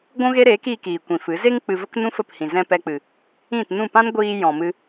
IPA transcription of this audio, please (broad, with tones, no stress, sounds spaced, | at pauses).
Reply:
ɡʷ ũ˦ ɣ e˦ ɾ eː˨˦ k iː˧ k iː˨ kʷ ĩ˨ f ɨ˨˦ z e˧ ŋ k͡p ɨ˨ v ə˦ k n ũ˦ f ə˦˨ p h ĩ˨ z ɛ̃˧ p ɛ˧ k͡p ɨ˨ | ĩ˦˨ t n ũ˦˨ p ã˦ n ɡʷ iː˧ j ɔ̃˨ m ɨ˧